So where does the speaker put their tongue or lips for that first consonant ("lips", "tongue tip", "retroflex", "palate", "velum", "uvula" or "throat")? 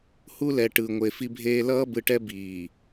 throat